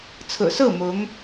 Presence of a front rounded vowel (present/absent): absent